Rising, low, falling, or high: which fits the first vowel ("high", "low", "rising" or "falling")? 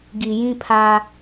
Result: low